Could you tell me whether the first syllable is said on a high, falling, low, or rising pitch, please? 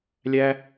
high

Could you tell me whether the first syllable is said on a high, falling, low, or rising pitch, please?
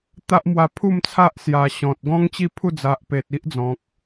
high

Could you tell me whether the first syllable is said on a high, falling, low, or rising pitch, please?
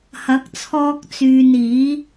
rising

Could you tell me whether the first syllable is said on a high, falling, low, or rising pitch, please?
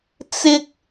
high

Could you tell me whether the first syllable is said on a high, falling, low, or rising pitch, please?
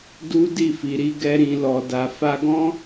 high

